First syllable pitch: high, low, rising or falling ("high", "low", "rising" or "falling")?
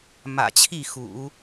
low